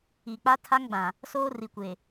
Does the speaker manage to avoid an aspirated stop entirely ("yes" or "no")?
no